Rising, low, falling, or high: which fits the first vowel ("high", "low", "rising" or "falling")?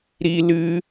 high